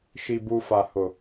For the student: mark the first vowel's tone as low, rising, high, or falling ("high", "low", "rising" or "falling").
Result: low